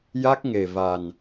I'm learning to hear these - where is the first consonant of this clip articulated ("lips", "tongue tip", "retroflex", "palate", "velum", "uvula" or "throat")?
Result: palate